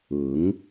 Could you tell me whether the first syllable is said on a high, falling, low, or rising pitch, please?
rising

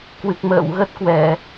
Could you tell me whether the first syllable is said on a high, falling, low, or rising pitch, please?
low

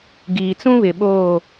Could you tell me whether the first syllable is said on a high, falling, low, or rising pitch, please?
low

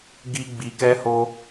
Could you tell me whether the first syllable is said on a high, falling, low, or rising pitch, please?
high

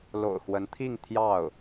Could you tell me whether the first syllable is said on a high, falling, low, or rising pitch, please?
low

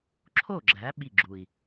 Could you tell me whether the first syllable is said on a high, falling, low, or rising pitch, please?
falling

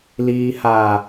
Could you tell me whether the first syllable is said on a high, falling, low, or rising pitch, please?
low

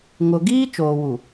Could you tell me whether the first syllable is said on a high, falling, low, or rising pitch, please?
low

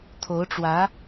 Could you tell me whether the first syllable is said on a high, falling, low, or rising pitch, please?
rising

